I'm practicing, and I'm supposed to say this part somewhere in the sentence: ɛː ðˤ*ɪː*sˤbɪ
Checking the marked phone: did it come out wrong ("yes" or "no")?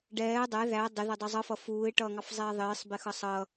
no